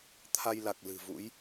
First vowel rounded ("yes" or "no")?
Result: no